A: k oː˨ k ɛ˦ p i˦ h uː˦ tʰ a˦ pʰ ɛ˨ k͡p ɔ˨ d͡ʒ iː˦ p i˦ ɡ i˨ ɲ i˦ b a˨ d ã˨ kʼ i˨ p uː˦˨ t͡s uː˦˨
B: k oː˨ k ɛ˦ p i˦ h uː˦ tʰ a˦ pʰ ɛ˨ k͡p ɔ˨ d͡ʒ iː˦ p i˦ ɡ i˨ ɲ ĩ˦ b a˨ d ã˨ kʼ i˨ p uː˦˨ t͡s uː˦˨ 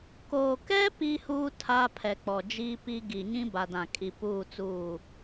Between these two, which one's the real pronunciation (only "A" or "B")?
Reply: B